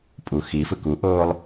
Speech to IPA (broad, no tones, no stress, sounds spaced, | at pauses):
pʼ u x i f ɯ k u ʔ oː lˠ